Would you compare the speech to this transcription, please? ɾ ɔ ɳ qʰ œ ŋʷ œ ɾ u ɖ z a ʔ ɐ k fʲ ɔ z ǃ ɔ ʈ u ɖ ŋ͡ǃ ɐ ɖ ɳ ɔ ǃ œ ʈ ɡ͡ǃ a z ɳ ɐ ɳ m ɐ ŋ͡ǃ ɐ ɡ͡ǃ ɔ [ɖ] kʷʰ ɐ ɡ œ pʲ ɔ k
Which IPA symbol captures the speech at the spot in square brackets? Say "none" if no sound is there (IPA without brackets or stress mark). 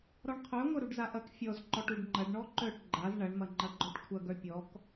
ʈ